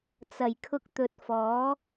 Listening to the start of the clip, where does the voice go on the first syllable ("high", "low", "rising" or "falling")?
low